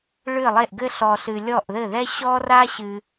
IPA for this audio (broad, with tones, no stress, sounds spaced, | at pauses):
ɭ ɨ˥˩ lˠ e˥˩ ʔ ɡ ɘ˥ ɬ ɔ˨ ɬ ɨ˨ lʲ ɔ˥˩ ʔ ð ɘ˥˩ ð ɛ˥ ɕ ɔ˥ r a˥ ɕ ɨ˨